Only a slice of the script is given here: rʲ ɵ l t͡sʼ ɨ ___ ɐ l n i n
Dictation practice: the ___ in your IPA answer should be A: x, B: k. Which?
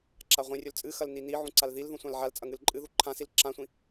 A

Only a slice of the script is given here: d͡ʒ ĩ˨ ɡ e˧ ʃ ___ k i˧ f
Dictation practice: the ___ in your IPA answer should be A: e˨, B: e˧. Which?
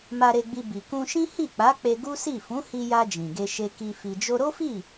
B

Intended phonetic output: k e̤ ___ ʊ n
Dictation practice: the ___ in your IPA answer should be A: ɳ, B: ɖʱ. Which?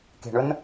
A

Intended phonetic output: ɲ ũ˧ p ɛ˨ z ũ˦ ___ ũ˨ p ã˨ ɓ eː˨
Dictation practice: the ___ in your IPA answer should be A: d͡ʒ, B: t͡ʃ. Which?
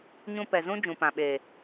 A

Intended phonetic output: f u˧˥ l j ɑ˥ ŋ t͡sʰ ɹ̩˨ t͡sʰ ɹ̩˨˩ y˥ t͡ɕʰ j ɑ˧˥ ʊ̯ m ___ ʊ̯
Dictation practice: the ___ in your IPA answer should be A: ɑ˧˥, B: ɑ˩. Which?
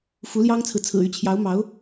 A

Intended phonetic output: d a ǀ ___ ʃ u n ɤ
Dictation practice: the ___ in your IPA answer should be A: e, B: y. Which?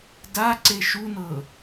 A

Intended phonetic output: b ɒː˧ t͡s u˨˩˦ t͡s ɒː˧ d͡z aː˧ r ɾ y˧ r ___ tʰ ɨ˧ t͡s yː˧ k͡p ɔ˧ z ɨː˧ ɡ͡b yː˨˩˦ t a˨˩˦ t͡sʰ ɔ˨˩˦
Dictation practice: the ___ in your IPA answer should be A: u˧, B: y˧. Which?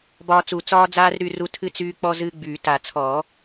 A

